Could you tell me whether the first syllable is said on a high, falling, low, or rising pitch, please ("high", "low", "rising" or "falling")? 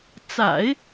low